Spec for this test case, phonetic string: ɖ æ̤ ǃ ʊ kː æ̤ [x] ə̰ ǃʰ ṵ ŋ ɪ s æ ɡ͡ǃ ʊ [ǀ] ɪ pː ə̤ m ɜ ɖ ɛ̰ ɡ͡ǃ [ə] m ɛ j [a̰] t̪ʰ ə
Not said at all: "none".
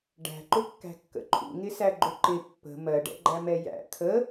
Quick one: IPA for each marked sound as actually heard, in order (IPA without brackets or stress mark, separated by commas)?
kː, ǃ, æ, æ̰